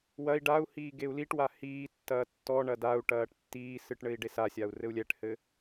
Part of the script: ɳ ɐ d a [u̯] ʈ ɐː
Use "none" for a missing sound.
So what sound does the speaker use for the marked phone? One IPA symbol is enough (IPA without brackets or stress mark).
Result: u̯